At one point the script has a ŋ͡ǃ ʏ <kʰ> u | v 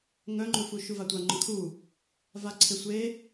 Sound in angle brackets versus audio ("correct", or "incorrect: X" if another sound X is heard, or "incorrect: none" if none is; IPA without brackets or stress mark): correct